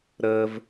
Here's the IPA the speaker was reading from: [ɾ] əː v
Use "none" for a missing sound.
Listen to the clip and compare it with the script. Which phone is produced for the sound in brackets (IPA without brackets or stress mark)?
ɾ